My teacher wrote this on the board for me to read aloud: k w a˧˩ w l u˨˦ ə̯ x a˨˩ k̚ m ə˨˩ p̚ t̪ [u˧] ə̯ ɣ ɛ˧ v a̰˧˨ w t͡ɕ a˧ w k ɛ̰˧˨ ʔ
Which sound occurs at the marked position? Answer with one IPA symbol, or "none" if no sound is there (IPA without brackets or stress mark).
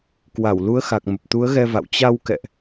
u˨˦